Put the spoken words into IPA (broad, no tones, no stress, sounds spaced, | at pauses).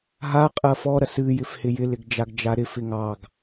ɦ a qʼ ɐ f ɔ ɾ ɐ s ɨ j ɪ f h ɪ j ɪ l ɪ ɡ d͡ʒ a ɡ d͡ʒ a ɾ ɪ f ɪ ŋ ɑ ɡ